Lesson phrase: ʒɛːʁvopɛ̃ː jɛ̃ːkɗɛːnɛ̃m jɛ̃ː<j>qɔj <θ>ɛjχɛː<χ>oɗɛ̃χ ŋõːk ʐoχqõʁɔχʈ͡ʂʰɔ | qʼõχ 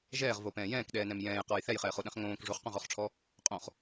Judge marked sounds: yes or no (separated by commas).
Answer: yes, yes, yes